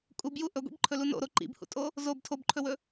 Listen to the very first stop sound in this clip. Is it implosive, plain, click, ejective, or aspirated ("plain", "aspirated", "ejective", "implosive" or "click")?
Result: ejective